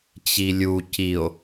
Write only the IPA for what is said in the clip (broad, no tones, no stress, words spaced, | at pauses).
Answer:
t͡ɕilʲu cio̯